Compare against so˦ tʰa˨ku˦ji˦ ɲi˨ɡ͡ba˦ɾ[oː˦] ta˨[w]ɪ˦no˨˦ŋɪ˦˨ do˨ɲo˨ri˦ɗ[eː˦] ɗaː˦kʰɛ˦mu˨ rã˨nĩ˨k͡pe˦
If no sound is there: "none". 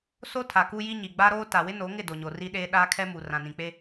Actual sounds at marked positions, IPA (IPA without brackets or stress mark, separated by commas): oː˦, w, eː˦